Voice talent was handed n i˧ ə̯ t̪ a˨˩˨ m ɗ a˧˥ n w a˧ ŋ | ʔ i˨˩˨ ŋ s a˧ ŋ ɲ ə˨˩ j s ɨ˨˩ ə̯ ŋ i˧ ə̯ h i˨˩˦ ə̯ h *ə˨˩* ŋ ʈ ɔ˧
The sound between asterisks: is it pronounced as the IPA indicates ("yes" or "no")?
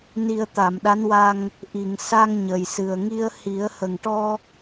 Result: yes